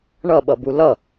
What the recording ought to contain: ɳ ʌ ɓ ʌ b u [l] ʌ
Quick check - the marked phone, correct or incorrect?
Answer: correct